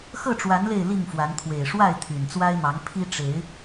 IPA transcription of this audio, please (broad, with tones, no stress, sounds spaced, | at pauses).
x ɤ˥˨ ʈ͡ʂ w a˨˦ n l e˥˨ ɪ̯ l i˥˨ ŋ f w a˨˦ n t̪ʰ w e˨˩ ɪ̯ ʂ w a˥˨ ɪ̯ t̪ʰ y˨˩ n t͡s w a˦ ɪ̯ m ɑ˨˦ ŋ pʰ i˦ ʈ͡ʂ e˨˦ ɪ̯